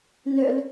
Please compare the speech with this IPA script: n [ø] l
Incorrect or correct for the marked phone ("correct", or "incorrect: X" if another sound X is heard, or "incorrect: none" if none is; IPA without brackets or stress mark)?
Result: correct